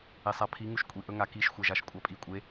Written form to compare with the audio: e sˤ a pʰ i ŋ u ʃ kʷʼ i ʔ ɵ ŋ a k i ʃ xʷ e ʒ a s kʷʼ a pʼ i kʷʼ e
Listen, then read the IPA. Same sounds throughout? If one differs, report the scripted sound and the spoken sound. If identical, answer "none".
s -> ʃ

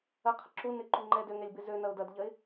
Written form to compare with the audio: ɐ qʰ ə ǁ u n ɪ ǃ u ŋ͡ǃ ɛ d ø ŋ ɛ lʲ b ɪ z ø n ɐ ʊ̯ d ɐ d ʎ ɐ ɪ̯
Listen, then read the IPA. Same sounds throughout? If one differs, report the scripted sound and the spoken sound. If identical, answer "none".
none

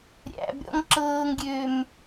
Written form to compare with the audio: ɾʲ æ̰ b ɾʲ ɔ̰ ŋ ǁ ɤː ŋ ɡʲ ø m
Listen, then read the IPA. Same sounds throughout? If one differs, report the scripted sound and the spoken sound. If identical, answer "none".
none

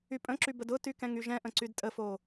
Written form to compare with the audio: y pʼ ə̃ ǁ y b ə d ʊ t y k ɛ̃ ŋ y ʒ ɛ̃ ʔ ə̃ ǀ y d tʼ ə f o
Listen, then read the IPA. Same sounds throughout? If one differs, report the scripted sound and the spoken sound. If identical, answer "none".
none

